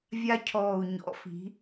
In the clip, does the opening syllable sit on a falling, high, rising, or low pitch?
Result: high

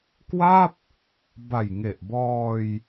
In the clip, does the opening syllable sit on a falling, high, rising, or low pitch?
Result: falling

